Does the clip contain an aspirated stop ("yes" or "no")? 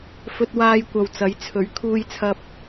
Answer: yes